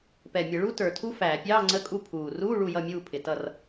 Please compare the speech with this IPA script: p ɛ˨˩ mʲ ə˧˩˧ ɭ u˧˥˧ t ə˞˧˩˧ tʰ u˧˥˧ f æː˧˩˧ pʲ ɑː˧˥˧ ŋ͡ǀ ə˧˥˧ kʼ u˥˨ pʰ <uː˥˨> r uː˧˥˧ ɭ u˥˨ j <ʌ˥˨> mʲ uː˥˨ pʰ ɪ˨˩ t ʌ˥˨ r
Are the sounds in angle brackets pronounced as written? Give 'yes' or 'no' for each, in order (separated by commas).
no, yes